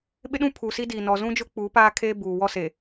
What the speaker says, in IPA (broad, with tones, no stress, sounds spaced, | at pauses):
ɓ ɪ˦ ɗ ũ˦ pʰ u˨ s i˦ d iː˨ n ɔ˨ z ũ˦ d͡ʒ ʊ˦ k͡p uː˨˦ p aː˦ kʰ e˦ b uː˨ w ɔ˦ s e˨